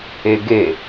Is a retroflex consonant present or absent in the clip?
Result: absent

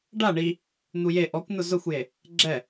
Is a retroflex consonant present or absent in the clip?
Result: present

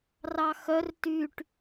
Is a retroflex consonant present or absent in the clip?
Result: present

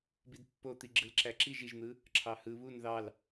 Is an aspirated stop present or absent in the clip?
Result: present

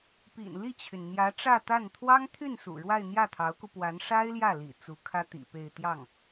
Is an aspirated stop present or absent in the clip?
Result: present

